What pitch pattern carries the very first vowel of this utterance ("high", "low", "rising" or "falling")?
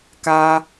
high